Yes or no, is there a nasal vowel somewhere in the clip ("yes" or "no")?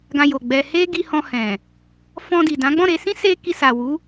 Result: yes